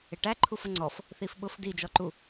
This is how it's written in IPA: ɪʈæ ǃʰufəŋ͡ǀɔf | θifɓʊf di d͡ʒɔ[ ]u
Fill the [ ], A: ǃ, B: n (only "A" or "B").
A